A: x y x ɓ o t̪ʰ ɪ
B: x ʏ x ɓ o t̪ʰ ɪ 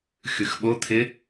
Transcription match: A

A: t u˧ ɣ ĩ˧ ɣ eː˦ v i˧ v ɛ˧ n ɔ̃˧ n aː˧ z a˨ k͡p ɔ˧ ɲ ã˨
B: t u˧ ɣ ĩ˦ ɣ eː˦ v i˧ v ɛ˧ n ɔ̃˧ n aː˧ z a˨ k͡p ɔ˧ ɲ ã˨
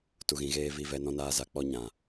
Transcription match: A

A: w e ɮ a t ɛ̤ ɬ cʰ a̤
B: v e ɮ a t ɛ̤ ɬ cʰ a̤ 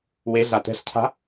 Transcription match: A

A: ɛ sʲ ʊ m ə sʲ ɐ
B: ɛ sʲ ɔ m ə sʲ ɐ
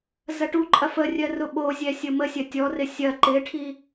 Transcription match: A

